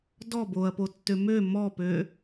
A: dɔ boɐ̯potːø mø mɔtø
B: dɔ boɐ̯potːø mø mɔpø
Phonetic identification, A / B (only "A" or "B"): B